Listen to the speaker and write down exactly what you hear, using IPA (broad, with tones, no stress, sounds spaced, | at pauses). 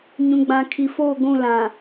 ɲ ũ˨ ɡ͡b ã˨ kʰ i˨ f o˦˨ ɡʷ ũ˦˨ l ã˨